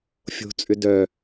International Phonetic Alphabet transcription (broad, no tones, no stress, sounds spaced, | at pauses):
fʲ o̤ t͡sʼ ʏ d œ